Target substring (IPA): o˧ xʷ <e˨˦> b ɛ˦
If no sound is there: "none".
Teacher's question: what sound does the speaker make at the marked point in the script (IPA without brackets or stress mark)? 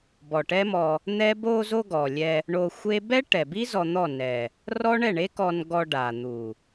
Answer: e˦